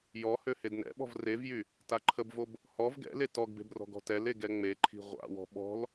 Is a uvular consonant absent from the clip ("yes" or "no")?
no